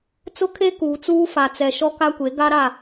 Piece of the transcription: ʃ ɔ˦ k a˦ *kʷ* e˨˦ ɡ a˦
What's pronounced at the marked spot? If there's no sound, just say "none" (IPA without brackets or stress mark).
kʷ